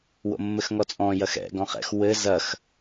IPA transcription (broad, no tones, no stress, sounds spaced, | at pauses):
w o̰ mː ɘ x ŋ ɔ t͡sʼ ɔ̃ j ɐ x ɛ̰ ɡ ɔ̃ χ ɛ̰ x w ɘ z ɐ x